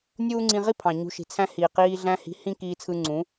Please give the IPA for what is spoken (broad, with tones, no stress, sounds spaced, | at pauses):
nʲ uː˦ ŋ͡ǀ ĩ˧ ʁ i˦ pʰ ɑ̃˨ ɲ ṳ˧ ʃ i̤˨ t͡sʰ æ̃˦ h iː˨ q iː˧ ɮ æ̃˧ h i̤˨˦ h ĩ˦ k iː˧ t͡sʰ ɯ˧ ŋ͡ǀ ũ˨˦